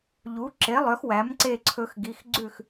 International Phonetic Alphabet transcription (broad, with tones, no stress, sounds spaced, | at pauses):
ʎ u˨˥ ǁ e˨˥ lˠ œ˨˥ x w æ˨˥ m ǀ e˥˧ ǀʰ ɵ˦˥ x ɡ i˧˥˧ x ɡ͡ǀ ʉ˥˧ x